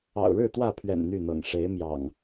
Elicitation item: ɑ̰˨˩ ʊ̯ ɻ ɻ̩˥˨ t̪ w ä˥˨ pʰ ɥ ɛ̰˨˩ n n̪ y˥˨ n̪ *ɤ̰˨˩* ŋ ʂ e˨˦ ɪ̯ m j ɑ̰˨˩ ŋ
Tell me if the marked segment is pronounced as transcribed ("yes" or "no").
yes